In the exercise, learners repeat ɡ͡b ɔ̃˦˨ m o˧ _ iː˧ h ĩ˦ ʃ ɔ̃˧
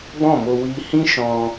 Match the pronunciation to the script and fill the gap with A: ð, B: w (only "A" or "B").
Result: B